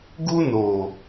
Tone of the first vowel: high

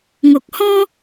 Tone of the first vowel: low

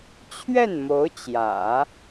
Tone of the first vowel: falling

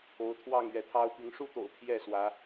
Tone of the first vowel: rising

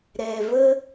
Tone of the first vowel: low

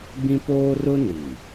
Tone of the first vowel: high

